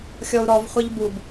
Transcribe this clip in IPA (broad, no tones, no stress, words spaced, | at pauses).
xʲɔu̯ɾɔv χʷɛʎbub